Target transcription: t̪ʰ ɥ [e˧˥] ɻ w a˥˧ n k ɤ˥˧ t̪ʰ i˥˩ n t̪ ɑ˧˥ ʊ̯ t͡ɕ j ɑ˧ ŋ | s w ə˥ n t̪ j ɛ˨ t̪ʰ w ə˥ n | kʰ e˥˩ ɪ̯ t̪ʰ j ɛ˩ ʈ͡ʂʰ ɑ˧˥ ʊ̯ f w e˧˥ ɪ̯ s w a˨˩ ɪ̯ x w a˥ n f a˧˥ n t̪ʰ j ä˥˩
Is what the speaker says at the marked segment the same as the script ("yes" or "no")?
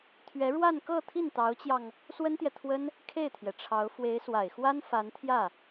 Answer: no